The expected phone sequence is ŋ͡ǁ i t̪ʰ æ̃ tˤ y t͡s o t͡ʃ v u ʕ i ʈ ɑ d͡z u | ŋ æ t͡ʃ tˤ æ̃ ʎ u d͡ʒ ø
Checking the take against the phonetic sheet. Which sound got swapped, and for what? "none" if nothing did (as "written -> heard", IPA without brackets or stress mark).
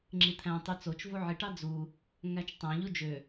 none